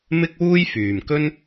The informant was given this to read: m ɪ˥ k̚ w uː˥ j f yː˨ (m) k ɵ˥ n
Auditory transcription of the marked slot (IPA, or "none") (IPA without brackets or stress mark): m